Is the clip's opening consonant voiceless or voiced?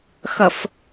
voiceless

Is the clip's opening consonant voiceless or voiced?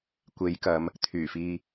voiceless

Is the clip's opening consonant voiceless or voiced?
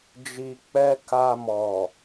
voiced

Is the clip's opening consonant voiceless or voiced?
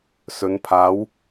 voiceless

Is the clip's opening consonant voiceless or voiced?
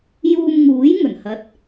voiced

